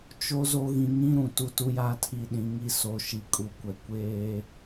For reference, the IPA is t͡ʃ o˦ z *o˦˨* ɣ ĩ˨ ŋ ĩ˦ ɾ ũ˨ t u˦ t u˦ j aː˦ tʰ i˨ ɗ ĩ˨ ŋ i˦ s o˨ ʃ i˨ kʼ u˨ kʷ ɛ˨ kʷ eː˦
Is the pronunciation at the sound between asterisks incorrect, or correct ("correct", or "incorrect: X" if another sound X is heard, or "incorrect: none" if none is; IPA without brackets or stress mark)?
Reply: incorrect: o˦